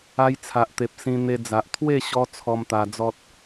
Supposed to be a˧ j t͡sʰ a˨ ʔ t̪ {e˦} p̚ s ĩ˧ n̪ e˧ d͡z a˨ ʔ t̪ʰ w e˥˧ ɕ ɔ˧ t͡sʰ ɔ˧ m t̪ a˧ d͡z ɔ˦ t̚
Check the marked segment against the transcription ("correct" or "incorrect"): incorrect